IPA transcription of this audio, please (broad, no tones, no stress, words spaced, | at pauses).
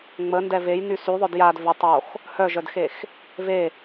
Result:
ŋ͡məndɛ vejny syðˤœd jad və tˤox | hœʒœdxex | ve